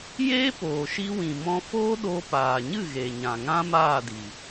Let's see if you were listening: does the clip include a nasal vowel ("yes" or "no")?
yes